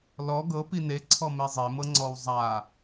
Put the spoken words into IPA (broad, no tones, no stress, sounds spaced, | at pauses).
l ɔ ɡ ɤ p i n e ǀʰ ɔ m e zˤ e m ɤ ŋ͡ǀ ɔ w zˤ a